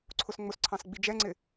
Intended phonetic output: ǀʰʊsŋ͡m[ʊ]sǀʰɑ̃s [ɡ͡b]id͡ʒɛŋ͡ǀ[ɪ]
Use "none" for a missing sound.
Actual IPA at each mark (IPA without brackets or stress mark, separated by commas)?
ʊ, ɡ͡b, ɪ